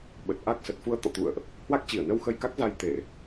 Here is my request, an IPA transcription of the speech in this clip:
ɓ ə˨˩ t̚ ʔ a˦˥ k̚ s ə˨˩ t̚ f u˧ ə̯ t̪ ɔ̰˧˨ t̪ ṵ˧˨ ə̯ ʔ | h w a˦˥ k̚ t͡ɕ i˧˩ ə̯ n ə˧ w x ə˧ j k a˦˥ k̚ z a˧ j t̪ e˧˩˨

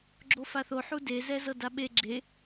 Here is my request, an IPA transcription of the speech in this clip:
ɡ͡ǁ o f a θ o ħ u d e z ɛ z ɤ d a ɓ e ɡ͡ǁ e

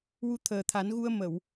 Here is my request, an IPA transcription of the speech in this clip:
w u˧ t̪ʰ əː˨˩ t̪ʰ a˨˩˦ n ɣ u˧ ə̯ m ə˨˩˨ w

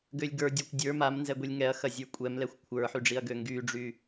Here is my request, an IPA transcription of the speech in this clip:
ɡ ø lʲ ɡ ə˞ dʲ a kʷ dʲ ə˞ m a m n z ɛ ɡʷ i lʲ ŋ ɛ ɐ̯ x ɐ zʲ ə˞ kʷʼ ɛ m l ɛ xʷ kʷʰ ə˞ ħ y ɖ͡ʐ i ɐ̯ ɡ ø ŋ ɡ y ɖ͡ʐ y

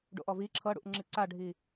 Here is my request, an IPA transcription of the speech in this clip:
ɖ o̰ ʔ ɔ v i ǁʰ ɤ ɽ ṵ ʔ ŋ͡ǁ i ǀ a ɖʱ i

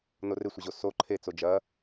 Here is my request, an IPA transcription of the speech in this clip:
n o r ɪ sʷ ɐ ʑ o s o ǃʰ e t͡s o d͡ʒ ɐ

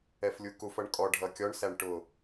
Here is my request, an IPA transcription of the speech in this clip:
ɛ f lʲ u k u f ʌ ɳ kʼ ɔ ɖʱ ʌ kʲ ɔ ɳ s æ ɳ ʈ ʊ

